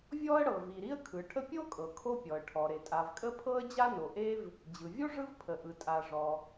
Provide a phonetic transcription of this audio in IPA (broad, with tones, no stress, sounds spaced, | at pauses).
vʲ ɔ˥ ə̯ ɽ ɤ˩ v i˩ ɾ i˥ ə̯ kʰ ɯ˩ ʈʰ ə˥ pʲ o˥ kʼ ɤ˩ kʰ o˥ pʲ ɔ˩ ə̯ ʈʰ ɔ˩ ɾ e˩ tʼ a˩ v kʼ ə˥ pʰ ɤ˥ ə̯ d͡ʑ a˥ n o˩ ʔ e˥ v | d͡ʑ ɯ˩ vʲ o˥ ʐ ɯ˥ v pʰ ə˩ ʔ ɯ˩ tʼ a˩ ʐ ɔ˩